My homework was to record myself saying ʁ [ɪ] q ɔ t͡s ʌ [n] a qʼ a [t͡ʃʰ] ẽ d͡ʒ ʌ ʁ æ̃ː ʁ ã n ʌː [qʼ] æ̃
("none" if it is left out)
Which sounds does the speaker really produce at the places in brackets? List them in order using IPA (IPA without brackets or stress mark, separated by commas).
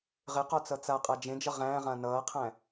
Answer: ɪ, t͡s, d͡ʒ, qʰ